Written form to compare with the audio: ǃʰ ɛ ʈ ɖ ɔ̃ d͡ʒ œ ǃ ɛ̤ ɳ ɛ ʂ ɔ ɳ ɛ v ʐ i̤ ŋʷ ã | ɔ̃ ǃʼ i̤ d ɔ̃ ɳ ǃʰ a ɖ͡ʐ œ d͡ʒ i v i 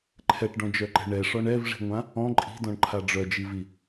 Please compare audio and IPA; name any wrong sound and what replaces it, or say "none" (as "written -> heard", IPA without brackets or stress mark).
none